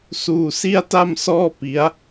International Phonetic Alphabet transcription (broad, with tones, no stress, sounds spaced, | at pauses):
s uː˧ s i˥˩ a̯ t a˥˩ m s ɔː˥˩ p i˦˥ a̯